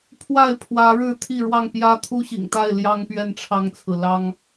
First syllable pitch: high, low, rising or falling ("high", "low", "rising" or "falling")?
falling